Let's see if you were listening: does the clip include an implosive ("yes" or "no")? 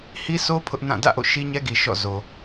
no